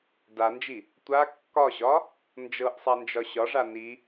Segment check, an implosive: absent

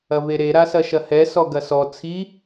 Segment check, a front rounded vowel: absent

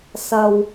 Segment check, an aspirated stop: absent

